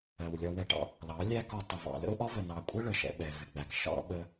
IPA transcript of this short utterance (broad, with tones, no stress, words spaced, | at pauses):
ɜ˨wlʲɒ˧wɛ˧ʈɑ̰˦ | lɑ˨˦lʲæ˦kɒ˧tˤʊ˨ vɑ̰˨lə̰˦ʊ̯ʔɒ˦və˨ nɑ˨kʷʼə˦ ɭə˨ʃɛ̰˧ ɓɛ˨vɪ˨ɡ͡bæ˨k ʃɑ̰˦ ɓə˦